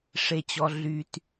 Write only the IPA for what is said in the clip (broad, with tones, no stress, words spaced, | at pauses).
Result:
ʂe˨t͡ɕɔ˨ ɮy˨t